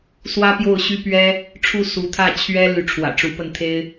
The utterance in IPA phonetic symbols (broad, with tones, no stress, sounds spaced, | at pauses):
s w ä˥ p j o˥˩ ʊ̯ ɕ y˥ p ɥ ɛ˥ | ʈ͡ʂʰ u˥˩ s u˧˥ t̪ʰ ä˥˩ t͡ɕʰ ɥ ɛ˥ l y˧˥ ʈ͡ʂʰ w ä̰˨˩ ʈ͡ʂ u˧˥ p ə˥˩ n t̪ʰ e˥ ɪ̯